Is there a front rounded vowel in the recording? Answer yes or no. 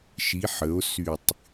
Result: yes